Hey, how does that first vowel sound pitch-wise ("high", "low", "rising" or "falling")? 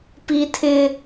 high